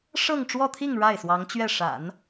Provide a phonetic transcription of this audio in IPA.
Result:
ʂ ɤ˥˧ ŋ ʈ͡ʂ w ɔ˥˧ t̪ʰ i˥˧ ŋ ɻ a˥˩ ɪ̯ s w ɑ˧˥ ŋ t͡ɕ ɥ ɛ˥˩ ʂ a̰˨˩˦ n

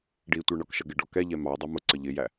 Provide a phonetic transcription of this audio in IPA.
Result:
ɖ i tʷ ɜ ɳ ɒ k ʃ ʌ ɡ ɪ ɖ ɔ k ɛ ʎ ɛ m ɑ dˤ ɑ m ʊ ǀ ə ʎ ɪ j æ

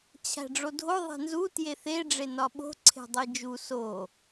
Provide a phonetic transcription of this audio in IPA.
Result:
t͡ɕʰ æ̤ ɖ͡ʐ o dʱ o ðˤ e̤ n z u t j e θ e ɖ͡ʐ e n ɒ ɓ o̤ ǀʰ e̤ dˤ i d͡ʒ u s o

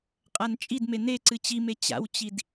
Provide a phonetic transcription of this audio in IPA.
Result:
qʼ a n t͡ʃʼ i d m e n e ǀ ɨ t͡ɕ i m e t͡ɕ a̰ w t͡ɕ i d

